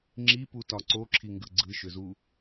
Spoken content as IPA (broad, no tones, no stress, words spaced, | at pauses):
ŋ͡ǁiputɒ ǀoǁʰiŋɡɯ ɡ͡ǀɯʃʏzu